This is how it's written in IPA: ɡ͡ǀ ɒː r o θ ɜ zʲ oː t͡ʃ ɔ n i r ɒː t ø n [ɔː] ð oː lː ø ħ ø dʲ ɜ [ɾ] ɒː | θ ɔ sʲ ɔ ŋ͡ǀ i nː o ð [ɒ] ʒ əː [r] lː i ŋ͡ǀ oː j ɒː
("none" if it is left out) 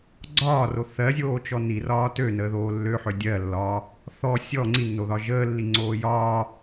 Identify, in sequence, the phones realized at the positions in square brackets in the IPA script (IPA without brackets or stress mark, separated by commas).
əː, lː, ɒ, none